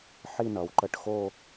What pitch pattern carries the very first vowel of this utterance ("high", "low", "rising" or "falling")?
falling